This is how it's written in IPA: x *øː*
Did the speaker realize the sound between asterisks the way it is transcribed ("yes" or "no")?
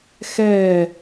no